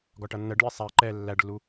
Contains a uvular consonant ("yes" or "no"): no